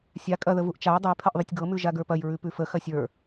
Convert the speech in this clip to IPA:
sʲ a kʼ ɐ ð ə v u ʔ t͡ʃ a j dˤ ə j pʰ ɐ ʔ ðˤ ə tʲ ɡ ɤ m ʉ ʒ a ɡ ə˞ p ɐ j ɹ ʉ p ʉ f ə x ɐ sʲ ə˞

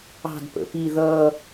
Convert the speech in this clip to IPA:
ɑ̤ d p ə̰ p i ð ʌː

